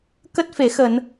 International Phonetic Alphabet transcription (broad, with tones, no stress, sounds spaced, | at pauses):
k ə˦˥ t̚ f e˧˩ x ə˧˩˨ n